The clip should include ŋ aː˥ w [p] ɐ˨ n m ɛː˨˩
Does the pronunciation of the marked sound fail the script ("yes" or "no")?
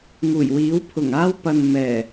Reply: no